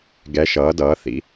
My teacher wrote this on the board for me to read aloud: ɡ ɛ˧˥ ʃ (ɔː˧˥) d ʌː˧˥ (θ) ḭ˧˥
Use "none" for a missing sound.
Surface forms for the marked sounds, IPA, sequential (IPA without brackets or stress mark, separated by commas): ʌː˧˥, θ